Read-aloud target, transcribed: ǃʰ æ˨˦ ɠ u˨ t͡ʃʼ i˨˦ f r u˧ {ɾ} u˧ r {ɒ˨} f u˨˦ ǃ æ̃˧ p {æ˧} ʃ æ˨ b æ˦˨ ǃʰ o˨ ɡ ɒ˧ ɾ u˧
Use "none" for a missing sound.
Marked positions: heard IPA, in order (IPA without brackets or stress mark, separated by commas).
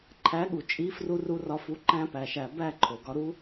r, ɒ˧, æ˨